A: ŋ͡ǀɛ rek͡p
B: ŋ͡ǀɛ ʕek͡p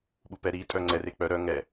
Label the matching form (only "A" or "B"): A